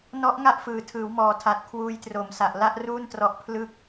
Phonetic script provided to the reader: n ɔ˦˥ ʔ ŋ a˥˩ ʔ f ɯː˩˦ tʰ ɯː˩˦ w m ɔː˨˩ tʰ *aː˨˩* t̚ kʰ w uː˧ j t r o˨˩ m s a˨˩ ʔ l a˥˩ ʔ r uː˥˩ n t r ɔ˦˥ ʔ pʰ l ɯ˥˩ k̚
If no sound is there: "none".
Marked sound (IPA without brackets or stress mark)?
aː˨˩